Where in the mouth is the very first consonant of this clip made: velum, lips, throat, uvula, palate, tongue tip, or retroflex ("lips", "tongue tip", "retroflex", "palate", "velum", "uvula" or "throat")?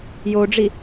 palate